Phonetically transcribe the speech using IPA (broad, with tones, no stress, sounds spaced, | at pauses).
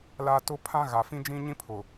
l a˦ t ʊ˦ pʰ ã˦ ɣ a˨ f ĩ˦ d͡ʒ ĩ˦ ɲ ĩ˦ pʰ ʊ˨